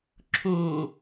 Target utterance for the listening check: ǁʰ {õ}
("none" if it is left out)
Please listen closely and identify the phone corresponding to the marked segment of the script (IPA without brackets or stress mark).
õ